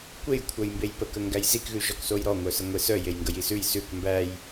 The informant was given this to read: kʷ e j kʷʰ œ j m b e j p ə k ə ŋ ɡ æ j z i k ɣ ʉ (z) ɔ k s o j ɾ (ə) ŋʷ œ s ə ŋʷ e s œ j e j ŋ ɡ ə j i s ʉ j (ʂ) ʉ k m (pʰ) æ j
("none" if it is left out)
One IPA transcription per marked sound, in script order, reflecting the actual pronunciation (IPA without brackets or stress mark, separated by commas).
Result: ʒ, ɔ, s, b